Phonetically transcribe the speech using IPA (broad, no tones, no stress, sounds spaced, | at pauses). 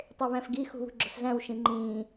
tˤ e β æ̃ f ɡ i x ṳ β ṳ ɡ͡ǁ o̤ s z æ̃ w ʃ ĩ ŋ͡ǃ ĩː